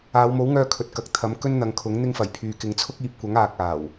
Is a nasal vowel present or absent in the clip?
absent